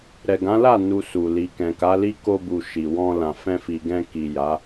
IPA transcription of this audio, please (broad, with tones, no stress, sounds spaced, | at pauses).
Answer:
ɾ ɛ˨ ɡ ã˨˦ l a˦˨ n u˧ s u˨ l i˨ k ɛ̃˨ k a˨˦ l i˦ k o˧ b u˨ ʃ i˨ w ɔ̃˧ l ã˨ f ɛ̃˧ f i˨ ɡ ɛ̃˧ k i˨ j a˨˦